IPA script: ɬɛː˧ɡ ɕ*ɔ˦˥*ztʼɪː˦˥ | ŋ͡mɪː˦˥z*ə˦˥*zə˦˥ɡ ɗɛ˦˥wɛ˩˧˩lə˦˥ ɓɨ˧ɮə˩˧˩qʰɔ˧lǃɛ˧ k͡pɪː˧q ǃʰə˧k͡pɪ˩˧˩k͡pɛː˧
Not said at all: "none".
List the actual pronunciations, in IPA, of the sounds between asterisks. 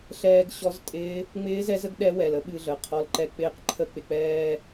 ɔ˦˥, ɛ˦˥

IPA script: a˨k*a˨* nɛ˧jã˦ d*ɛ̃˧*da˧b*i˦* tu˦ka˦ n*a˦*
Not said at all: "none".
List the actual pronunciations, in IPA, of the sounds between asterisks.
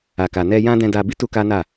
a˨, ɛ̃˧, i˦, a˦˨

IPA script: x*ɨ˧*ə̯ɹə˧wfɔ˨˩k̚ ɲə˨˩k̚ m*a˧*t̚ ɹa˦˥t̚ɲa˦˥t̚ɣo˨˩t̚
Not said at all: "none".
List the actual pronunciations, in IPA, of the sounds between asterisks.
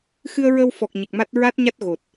ɨ˧, a˦˥

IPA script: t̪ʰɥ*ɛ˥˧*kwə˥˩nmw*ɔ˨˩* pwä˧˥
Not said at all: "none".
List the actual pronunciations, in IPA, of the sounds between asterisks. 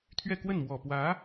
ɛ˥˧, ɔ˨˩

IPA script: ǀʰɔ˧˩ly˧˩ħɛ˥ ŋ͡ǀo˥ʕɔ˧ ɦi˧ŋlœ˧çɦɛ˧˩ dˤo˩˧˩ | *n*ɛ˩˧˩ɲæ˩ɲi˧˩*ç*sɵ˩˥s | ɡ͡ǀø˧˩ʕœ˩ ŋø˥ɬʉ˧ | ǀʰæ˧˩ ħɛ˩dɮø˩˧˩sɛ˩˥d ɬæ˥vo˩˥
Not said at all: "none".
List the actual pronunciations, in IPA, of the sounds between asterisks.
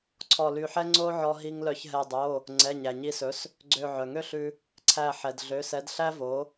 ŋ͡ǀ, none

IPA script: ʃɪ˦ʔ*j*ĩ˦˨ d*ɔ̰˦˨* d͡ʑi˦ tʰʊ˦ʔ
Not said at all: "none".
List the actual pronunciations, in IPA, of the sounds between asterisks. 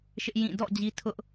j, ɔ̰˦˨

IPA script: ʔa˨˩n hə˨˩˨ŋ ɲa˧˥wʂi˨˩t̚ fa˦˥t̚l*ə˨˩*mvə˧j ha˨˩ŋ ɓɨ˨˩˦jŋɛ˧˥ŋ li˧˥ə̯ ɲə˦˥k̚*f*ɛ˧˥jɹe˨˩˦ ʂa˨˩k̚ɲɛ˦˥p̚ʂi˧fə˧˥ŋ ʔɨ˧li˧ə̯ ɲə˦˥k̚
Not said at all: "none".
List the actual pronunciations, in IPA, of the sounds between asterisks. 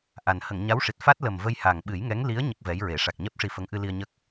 ə˨˩, v

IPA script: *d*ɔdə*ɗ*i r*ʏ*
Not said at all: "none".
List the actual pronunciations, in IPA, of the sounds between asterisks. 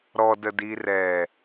ɾ, d, ɛ

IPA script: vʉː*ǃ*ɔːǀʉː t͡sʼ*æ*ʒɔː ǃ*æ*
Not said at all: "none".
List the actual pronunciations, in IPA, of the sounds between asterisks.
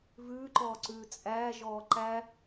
ǃ, æː, æ

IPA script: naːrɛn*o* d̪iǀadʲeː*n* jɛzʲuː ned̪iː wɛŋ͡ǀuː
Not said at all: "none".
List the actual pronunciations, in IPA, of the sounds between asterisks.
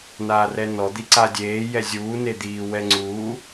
ɔ, none

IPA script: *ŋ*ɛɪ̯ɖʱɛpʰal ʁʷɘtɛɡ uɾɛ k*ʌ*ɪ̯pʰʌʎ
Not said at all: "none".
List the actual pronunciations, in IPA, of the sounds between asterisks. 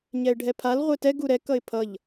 ɲ, ʌ

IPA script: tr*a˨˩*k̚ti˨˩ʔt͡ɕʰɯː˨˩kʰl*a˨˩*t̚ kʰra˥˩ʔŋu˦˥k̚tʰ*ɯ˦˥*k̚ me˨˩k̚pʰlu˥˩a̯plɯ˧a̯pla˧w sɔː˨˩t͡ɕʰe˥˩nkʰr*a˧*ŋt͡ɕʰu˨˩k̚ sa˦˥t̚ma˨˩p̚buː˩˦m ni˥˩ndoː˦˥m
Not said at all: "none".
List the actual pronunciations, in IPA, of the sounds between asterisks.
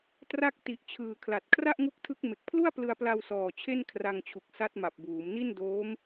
a˥˩, a˨˩, ɯ˦˥, a˧

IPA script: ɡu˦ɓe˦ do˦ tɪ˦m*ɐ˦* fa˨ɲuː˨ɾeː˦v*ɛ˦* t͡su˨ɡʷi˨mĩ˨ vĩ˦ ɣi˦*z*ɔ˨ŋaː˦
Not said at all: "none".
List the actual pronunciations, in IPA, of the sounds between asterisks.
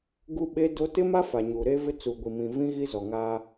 a˦, ɪ˦, z

